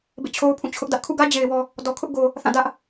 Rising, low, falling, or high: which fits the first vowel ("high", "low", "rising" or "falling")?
falling